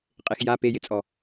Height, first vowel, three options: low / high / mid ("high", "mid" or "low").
mid